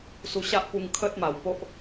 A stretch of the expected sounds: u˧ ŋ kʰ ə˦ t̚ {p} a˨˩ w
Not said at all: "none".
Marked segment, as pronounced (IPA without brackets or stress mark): m